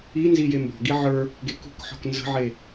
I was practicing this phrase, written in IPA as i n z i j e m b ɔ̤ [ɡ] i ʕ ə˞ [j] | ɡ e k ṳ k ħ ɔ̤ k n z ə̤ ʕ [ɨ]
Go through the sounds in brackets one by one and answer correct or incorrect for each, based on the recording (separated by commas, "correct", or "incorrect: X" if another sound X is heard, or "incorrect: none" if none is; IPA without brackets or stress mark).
correct, incorrect: none, incorrect: e